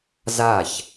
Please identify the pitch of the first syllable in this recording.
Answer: falling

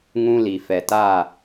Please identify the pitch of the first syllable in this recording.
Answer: high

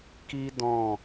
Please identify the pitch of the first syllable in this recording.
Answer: high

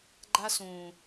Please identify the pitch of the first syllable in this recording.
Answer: high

